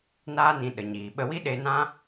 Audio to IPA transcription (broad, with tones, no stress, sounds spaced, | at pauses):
n aː˦ n ĩ˧ ɗ ə˨ ɲ iː˨ ɓ ə˦ w i˦ ɗ e˧ n ã˦